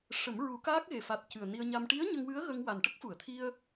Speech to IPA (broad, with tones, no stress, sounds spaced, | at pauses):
ʂ ə˨˩˦ m ɹ u˨˩˦ k aː˦˥ k̚ ɣ e˨˩ f a˨˩ t̚ c ɨ˨˩ ə̯ n i˧ ə̯ ɲ a˧ m ʈ i˧˥ ə̯ ɲ ə˧ ŋ w ɨ˧˥ ə̯ ɣ ə˧ ŋ w a˨˩ n ʈ ə˦˥ k̚ f u˨˩˨ ə̯ t̪ʰ i˧ ə̯